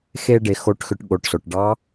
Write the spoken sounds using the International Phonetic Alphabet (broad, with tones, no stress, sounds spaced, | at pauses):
x e˥ ɖ e˧ x o˧˥ ʈ x ʏ˧ ʈ ɠ o˩˧ ʈ s o˩ ʈ ɖ ɑ˧˥